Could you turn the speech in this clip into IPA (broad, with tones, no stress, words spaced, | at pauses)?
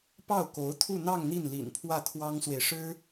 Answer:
pɑ˥˩ʊ̯ko˧˥ʊ̯t̪ʰu˥˧n̪ɑ˥˧ŋ n̪i˥˩nlḭ˨˩npʰwä˥˩ t̪ʰwɑ˥ŋswe˨ɪ̯ʂɻ̩˥